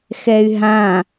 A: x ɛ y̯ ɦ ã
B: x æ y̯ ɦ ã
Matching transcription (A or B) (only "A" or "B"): A